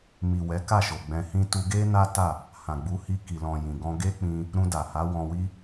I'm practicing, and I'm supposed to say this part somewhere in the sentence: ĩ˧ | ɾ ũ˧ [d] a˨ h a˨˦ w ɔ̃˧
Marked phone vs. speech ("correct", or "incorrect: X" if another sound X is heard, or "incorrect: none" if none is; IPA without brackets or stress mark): correct